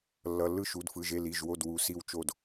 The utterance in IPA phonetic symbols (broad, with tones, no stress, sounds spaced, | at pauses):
lː ʌ˩˧˩ lː ɯ˥˩ ʃ u˩˧˩ d f ɯ˩˧˩ ʒ e˥˩ l i˩˧˩ ʒ w o˥˩ d w u˩˧˩ s i˥˩ w t͡ʃ o˥˩ d